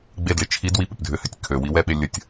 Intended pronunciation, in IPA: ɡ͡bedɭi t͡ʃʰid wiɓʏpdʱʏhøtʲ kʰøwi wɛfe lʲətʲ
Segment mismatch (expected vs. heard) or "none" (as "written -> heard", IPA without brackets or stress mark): f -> ɓ